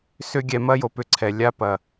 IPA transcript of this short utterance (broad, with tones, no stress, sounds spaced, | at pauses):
s ʏ˦ ɡʲ ɛ˨˦ m ɐ˦ j o˧ p ʏ˧ ǀʰ ɛ˨ lʲ a˦ p ɐ˨